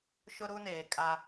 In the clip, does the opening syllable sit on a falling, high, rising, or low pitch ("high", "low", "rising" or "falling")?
high